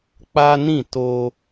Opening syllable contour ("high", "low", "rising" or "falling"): high